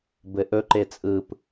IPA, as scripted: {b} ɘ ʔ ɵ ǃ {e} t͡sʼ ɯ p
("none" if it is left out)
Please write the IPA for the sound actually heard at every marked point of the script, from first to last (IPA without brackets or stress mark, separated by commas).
b, e